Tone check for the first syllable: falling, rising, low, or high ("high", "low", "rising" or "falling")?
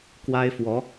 high